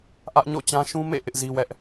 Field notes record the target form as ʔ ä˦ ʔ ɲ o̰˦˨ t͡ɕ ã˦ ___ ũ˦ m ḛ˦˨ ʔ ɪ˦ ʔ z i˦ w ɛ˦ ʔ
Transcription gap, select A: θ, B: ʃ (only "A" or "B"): B